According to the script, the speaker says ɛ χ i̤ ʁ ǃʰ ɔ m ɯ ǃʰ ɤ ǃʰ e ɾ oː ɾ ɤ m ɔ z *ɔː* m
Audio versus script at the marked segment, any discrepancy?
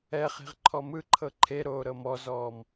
no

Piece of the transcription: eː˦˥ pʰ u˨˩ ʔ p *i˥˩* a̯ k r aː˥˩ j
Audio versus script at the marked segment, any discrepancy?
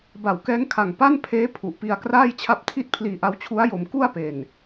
yes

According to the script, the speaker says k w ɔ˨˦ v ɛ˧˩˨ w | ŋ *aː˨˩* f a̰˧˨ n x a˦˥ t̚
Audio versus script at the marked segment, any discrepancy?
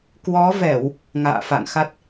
yes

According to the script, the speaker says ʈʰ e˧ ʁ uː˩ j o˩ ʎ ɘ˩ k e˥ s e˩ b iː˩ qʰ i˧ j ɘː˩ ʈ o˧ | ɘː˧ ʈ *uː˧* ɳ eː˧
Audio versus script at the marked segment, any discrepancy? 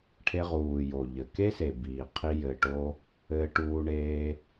no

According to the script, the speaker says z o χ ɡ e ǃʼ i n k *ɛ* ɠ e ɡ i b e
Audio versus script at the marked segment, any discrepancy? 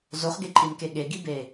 yes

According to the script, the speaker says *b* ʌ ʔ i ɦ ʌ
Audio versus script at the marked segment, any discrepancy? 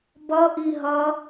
no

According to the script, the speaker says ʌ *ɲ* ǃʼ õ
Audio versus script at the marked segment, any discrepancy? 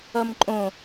yes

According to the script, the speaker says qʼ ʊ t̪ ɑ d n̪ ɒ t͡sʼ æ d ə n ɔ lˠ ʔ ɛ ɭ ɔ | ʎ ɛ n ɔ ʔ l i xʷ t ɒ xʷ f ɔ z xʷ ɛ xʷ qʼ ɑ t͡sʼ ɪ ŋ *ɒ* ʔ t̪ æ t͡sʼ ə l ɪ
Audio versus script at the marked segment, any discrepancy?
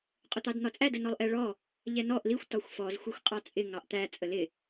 yes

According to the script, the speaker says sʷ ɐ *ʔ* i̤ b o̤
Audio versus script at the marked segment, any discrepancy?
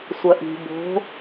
no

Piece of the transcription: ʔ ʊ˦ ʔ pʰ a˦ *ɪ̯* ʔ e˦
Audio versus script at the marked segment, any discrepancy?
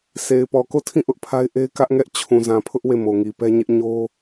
no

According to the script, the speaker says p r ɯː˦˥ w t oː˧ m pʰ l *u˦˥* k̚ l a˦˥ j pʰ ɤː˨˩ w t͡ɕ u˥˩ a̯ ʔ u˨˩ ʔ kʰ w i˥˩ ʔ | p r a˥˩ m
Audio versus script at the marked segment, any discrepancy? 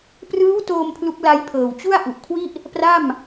no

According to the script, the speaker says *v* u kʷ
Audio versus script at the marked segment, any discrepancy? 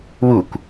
yes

